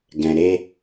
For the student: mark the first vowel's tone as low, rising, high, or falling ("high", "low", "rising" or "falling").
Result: low